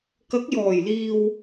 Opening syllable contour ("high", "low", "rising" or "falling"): rising